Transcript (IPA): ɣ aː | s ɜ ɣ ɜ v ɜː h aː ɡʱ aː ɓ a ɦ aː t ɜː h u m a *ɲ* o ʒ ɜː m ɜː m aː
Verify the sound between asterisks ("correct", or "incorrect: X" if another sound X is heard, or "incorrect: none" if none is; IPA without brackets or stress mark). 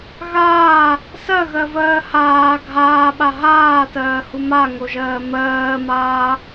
incorrect: ŋ